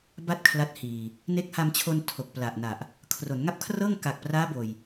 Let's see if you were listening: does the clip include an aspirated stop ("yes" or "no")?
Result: yes